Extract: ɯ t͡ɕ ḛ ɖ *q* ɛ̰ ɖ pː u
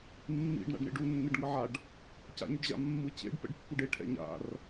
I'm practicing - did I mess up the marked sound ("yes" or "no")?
yes